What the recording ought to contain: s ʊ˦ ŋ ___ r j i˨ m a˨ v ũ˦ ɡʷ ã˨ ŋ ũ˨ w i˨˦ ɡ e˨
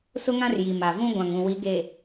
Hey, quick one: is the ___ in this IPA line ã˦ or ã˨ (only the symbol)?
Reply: ã˦